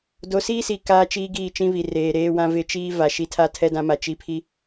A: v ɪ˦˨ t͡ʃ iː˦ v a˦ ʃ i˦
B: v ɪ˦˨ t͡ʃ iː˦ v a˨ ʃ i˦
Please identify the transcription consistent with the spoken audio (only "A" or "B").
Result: B